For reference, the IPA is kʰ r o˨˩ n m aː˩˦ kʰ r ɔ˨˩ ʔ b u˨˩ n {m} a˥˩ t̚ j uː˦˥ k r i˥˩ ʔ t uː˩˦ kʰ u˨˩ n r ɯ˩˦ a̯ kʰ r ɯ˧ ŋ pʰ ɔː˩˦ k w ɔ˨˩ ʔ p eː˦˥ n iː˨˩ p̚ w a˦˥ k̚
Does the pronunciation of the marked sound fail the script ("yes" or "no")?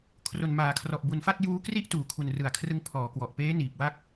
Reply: yes